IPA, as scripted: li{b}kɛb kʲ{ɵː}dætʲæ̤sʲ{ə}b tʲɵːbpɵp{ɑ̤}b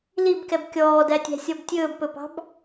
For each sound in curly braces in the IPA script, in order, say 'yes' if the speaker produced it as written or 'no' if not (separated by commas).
yes, no, no, yes